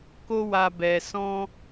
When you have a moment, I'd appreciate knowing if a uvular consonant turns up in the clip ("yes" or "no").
no